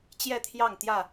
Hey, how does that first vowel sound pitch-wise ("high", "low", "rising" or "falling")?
falling